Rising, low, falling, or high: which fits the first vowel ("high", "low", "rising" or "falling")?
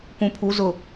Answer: low